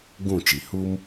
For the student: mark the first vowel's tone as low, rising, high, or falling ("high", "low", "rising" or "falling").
falling